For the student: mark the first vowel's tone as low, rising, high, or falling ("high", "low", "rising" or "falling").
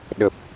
low